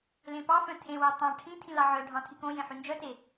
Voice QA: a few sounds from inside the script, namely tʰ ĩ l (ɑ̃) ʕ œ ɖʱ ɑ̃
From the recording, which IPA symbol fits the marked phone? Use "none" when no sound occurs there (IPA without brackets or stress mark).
ɑ